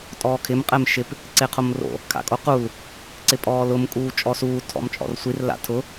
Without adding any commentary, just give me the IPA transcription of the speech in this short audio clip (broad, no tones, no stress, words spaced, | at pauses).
tʼɔːkʰɪm qʼɛmʃɪp | ǀeqʰomro̰ | kʰa̰kʼoqul | ǀɪpʼɔːlʊm kʼuːt͡ʃʼɔsuː tʰɔ̰mt͡ʃʼɔ̰rsʷir la̰tʰʊ